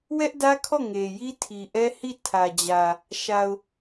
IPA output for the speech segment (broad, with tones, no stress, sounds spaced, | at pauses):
w ɛ˦ ʔ d ä˦ kʰ ɔ˦˨ ŋ e˨ j i˦ tʰ i˨ ʔ ɛ˦ h i˦˨ tʰ ä˨ d͡ʑ ä˨ | ʃ a˨ ʊ̯